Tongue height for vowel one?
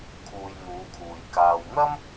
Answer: high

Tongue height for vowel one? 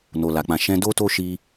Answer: mid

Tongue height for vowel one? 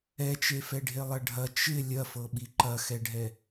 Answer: mid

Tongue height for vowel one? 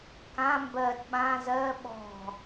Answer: low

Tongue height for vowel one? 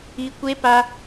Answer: high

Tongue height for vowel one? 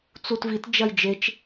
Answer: high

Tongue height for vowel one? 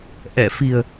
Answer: mid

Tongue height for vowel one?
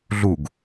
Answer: high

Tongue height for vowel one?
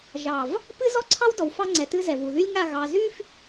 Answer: low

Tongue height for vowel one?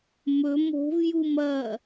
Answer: mid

